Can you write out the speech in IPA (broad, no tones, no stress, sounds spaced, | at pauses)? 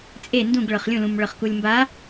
t͡sʼ e n d ũ ɡ ɭ ɤ χ lʲ ũ l ũ m ɭ ɤ χ k u lʲ m b a